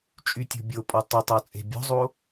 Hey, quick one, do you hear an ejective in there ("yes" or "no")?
yes